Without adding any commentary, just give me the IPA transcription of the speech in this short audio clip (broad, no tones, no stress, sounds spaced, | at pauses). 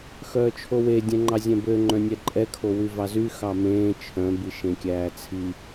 x œː t͡ʃʰ o w e dʲ ɛ̃ ŋ͡ǃ ɑ zʲ ɛ̃ b ø ŋ͡ǃ œ̃ nʲ ɛ ǃʼ ɛ kʰ o w y v ɑ z y x ɑ m ẽː t͡ʃʰ œ̃ b i ʃ ẽ kʲ æː t͡sʰ i